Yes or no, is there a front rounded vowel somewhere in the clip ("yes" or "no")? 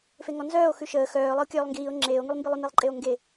yes